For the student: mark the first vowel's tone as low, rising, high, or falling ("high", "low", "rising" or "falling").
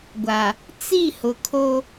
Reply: low